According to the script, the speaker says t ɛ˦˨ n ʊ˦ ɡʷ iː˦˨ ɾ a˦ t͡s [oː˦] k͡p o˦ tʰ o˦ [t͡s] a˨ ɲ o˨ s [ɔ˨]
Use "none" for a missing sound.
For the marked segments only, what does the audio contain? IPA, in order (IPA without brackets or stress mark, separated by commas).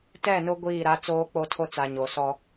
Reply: oː˦, t͡s, ɔ˦